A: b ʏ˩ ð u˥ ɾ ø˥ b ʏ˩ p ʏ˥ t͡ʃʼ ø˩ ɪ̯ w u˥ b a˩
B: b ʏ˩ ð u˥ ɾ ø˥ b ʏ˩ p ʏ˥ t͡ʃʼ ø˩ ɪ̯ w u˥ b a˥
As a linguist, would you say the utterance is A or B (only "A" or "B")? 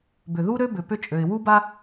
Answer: B